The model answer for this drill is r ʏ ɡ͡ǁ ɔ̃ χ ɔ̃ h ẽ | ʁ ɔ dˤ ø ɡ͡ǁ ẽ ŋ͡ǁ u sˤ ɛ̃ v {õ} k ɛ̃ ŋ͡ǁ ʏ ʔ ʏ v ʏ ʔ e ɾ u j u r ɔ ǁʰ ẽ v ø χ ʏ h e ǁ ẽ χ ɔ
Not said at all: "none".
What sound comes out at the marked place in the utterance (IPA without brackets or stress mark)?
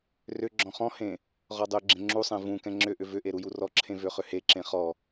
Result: ũ